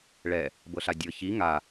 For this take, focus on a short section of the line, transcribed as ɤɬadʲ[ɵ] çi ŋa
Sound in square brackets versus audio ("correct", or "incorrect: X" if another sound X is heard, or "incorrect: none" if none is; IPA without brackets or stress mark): incorrect: ɤ